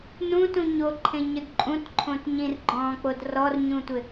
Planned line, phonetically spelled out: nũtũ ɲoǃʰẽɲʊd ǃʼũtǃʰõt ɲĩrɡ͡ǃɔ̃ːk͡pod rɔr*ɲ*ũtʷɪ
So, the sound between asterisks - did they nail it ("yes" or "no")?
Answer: yes